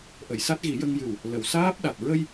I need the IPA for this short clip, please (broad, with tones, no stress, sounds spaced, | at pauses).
ʔ ə˨˩˨ j s a˦˥ t̚ ɣ i˨˩˦ j ə˧ ŋ j ɨ˨˩ w | l ə˨˩˨ w s aː˦˥ p̚ ɗ a˨˩ t̚ ɹ ə˧ j